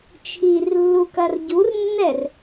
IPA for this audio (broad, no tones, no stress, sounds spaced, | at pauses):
t͡ʃʰ i r lː u k ɐ r ɟ u r nː ɛ r